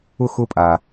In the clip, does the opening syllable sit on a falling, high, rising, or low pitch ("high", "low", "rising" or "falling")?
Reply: falling